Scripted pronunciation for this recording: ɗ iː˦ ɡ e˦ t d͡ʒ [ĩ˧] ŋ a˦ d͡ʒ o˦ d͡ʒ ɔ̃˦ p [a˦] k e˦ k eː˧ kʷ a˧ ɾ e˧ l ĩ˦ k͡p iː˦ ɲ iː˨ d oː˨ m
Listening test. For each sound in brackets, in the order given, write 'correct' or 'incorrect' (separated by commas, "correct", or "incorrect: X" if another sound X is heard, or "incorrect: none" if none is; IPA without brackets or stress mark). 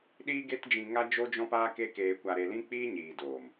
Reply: correct, incorrect: aː˦